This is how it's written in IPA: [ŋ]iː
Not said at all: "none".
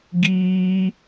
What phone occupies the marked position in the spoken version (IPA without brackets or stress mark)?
ɡ